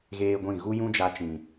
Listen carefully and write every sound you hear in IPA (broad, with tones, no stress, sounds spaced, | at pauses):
ɣ eː˦ ɡʷ ĩ˦˨ ɣ u˦ j ũ˦ d͡ʒ a˧ t͡ʃ ĩ˨